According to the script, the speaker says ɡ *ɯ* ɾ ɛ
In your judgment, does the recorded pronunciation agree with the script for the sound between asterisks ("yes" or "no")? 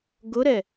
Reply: no